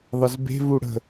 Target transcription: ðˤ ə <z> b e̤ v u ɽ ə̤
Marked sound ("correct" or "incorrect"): correct